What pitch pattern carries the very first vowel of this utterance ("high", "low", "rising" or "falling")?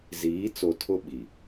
rising